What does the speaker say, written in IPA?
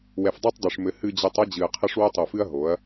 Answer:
wɛ˨fdˤa˦tˤdˤo˨ʂ mɘ˨ hɨ˨d͡ʑɘ˨tˤ ɐ˦d͡ʑɨ˨ɐ̯qʰɐ˦ʂ wo˦tˤo˨fɨ˦ɐ̯ ɦo˨˦ɐ̯

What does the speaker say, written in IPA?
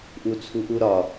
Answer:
ʔut͡sʰuʔuɾɒ

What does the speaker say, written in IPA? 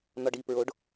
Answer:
n̪ɒɖipɹoɖ

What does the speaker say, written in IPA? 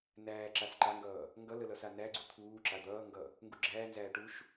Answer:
næːǁas ǃaŋɡʌː | ŋɡʌlə lʌsanæɡ͡ǀu t̪ʰuːǁa d̪ʌːŋɡʌ | ŋɡuɡ͡ǁæːnzæː ʈuʃ

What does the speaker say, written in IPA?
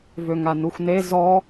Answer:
vøŋanuxʷne zɔ

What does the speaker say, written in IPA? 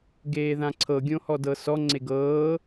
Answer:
ɡeːðãǀʰɤ ɡʲõhɔdɤsɔ ŋ͡ǀeɡɤː

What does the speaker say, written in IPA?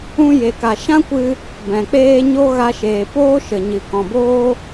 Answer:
ũ˦ je˨ka˨ ʃã˦kʷɨ˧ | bɛ̃˨k͡peː˦ ɲo˦ɣa˧ʃeː˨ poː˦ʃə˨ɲɨ˨ kɔ̃˨boː˦

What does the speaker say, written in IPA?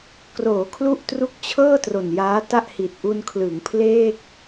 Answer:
kroː˩˦kʰlu˥˩ʔ tru˦˥k̚t͡ɕʰɤː˥˩ tro˨˩njaː˦˥ta˥˩ʔ hi˨˩t̚ʔu˧nkʰlɯ˩˦ŋ pʰleː˥˩k̚

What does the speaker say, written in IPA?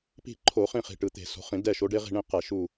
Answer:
pi̤˦˨ ǃʰo˧˩˧χĩ˦˨ χi̤˨˩ʈɯ˨˩t̪e̤˧˩˧ so̤˨˦χĩ˧˩˧dɛ˦˨ ʃo˨˦ɖe˦ʁi̤˦˨ ɳĩ˦˨qɛ˧˩˧ ʃu˦˨

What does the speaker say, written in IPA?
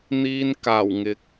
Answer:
n̪iː˧nkaː˨˩wŋɪ˨˥k̚

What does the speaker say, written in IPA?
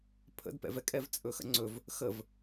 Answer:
pʰə̰d pɛ̰vɛkʼɛv t͡sʼɵxə̰ŋ͡ǀɵv | xəv

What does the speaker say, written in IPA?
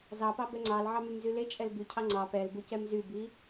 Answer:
zɑpɑ bɛŋ͡ǀɑlʕɑ mymzylet͡ʃʼɛl bycʰɑ ŋ͡ǀɑ pɛl bucɛmzybi

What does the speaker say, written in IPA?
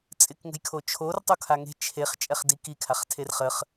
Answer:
t͡sʼɪkŋə̤jkʰo t͡ʃʰor tˤokʰaŋe̤ t͡ʃʰeχ t͡ʃʼɛχdikikʰaχ tʰerχəχ

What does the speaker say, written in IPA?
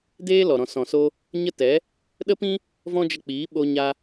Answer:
deː˦lɔ˨ ɾɔ̃˨sɔ̃˨so˧ | ɲə˦tɛ˨˦ | ɗə˦pĩ˦ | vɔ̃˦d͡ʒə˧k͡piː˨˦ ɓo˧ɲa˧

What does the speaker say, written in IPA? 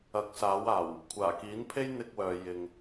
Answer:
ɐ˨˥k̚saː˨˥waː˨˩w | kʷʰaː˨˩kiː˨˥npʰe˥j n̪ɪ˧k̚wœː˨ jɪ˨ŋ

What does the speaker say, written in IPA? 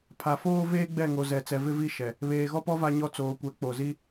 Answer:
pʰa˨foː˦ veː˦ɡ͡bɛ˦˨ŋo˨zɛ˨ t͡sɛ˨vɪ˦vi˦˨ ʃɛ˨ | βeː˨ɣɔ˦pɔ˦ va˦ɲɔ˦ t͡soː˨kʷɛ˨˦ k͡po˨zi˦

